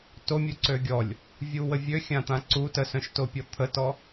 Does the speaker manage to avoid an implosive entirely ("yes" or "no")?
yes